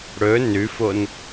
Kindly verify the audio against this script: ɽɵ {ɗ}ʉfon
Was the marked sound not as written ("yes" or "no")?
yes